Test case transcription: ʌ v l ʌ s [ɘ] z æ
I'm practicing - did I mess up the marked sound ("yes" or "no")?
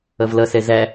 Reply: yes